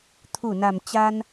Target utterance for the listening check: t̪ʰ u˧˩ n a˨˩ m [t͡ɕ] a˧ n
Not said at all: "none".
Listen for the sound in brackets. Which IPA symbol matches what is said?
t͡ɕ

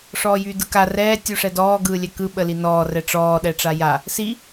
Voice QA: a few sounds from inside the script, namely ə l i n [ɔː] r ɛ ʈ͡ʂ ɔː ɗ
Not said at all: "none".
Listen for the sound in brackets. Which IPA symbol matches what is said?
ɔː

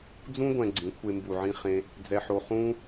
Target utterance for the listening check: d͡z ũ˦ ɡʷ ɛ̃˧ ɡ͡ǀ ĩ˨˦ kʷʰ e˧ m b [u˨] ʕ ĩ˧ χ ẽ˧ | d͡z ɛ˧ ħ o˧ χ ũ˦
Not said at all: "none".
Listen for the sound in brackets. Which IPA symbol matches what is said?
u˨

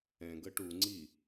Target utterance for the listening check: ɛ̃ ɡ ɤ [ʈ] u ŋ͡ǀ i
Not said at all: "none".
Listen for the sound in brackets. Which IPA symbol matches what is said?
ʈ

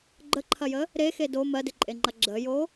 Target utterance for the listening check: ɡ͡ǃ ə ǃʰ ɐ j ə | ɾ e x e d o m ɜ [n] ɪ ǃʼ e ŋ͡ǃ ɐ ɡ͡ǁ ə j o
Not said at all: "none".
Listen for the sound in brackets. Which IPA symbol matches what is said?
d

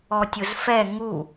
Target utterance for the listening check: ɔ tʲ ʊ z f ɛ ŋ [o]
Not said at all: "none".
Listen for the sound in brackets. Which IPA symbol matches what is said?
u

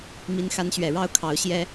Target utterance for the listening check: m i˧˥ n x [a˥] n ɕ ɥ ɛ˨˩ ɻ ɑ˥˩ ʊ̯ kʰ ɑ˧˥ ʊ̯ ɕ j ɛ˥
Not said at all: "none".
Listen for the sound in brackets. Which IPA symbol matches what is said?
a˧˥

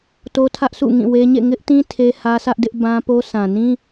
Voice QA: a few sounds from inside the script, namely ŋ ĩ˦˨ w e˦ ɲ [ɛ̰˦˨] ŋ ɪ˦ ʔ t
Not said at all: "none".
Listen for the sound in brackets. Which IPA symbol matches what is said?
ḛ˦˨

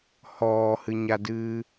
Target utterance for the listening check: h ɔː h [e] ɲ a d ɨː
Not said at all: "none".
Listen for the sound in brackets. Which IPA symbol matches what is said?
ɨ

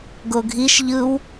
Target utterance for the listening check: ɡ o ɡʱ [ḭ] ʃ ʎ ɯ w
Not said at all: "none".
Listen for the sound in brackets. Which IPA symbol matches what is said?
i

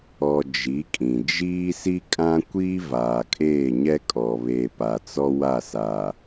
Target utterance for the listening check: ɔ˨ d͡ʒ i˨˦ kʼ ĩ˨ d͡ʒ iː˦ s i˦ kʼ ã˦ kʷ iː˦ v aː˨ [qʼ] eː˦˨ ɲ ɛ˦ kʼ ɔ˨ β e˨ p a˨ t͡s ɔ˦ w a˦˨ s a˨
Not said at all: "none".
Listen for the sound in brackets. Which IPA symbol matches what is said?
kʼ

